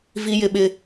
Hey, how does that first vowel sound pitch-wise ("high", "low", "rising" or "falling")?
high